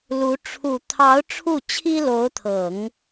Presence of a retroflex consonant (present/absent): present